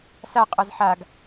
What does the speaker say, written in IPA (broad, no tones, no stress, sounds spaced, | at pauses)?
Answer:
s a qʼ ʌ z ħ a ɡ